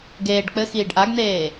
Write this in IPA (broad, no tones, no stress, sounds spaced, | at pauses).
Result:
ɡ eː ɖ k͡p ɘ x iː ɖ ʔ a ɡ n̪ eː